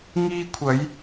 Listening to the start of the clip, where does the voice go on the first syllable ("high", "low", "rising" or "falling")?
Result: high